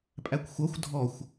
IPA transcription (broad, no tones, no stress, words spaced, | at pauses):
pʼækʷxʷʌxʷ dʱɔxʷ